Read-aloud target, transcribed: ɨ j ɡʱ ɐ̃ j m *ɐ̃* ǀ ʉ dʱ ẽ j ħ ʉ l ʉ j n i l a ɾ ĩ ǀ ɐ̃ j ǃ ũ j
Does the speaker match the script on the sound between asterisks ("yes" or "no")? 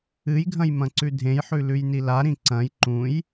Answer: yes